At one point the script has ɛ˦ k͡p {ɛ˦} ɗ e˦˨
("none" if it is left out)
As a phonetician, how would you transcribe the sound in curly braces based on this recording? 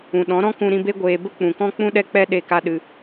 ɛ˦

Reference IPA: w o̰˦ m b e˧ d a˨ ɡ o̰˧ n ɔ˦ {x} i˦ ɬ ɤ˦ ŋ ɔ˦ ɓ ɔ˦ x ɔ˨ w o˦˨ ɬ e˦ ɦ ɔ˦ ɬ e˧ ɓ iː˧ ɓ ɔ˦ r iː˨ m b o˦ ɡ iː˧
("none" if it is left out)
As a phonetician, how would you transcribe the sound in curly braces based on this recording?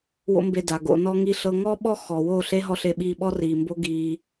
ŋ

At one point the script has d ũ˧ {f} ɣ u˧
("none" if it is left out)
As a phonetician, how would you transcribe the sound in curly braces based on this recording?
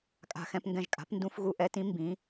f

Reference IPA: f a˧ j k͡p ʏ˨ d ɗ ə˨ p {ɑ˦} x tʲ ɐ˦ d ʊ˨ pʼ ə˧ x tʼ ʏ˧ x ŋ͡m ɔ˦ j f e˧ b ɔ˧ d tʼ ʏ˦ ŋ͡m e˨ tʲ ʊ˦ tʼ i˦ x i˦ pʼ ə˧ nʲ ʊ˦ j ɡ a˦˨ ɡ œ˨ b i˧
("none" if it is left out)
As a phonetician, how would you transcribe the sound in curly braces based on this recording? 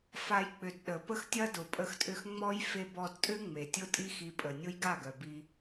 ə˦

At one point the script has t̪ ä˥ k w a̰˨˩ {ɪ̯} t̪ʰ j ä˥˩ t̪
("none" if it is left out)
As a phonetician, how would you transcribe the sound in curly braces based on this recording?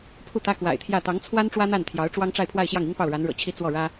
ɪ̯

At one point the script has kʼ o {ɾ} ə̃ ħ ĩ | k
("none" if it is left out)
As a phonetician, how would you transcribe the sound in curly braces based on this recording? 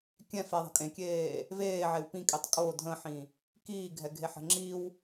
dʱ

